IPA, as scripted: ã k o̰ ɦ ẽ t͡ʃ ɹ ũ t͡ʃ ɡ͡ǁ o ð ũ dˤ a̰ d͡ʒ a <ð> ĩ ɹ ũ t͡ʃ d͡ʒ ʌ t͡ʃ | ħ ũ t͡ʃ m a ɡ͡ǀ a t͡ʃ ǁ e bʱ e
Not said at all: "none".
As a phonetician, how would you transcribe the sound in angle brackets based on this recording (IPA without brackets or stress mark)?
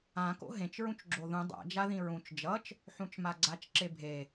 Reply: ð